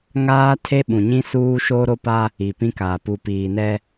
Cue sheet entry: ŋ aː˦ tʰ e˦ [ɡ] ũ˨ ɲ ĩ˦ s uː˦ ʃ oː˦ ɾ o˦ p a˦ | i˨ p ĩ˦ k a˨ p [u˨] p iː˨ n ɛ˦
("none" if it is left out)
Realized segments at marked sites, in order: ɓ, u˨

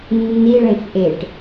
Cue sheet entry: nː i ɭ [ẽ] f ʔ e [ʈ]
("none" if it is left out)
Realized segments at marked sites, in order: ẽ, ʈ

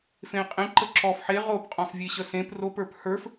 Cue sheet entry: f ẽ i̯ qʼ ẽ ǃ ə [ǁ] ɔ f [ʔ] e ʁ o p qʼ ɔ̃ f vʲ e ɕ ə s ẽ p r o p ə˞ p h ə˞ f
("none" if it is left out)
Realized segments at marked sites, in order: ǁ, ħ

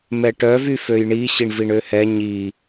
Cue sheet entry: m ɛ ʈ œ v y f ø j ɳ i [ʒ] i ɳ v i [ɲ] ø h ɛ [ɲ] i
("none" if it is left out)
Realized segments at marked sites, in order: ɕ, ɳ, ɲ

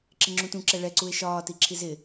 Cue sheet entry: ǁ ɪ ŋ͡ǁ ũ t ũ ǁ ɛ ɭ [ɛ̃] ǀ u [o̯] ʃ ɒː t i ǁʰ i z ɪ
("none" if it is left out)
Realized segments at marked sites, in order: ɛ, e̯

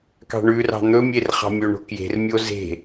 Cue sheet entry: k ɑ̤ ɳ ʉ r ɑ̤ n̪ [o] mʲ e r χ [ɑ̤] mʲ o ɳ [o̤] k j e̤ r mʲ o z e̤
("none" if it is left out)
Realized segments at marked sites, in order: ɵ, ɑ̤, o̤

